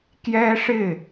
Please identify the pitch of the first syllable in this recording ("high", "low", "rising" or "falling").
high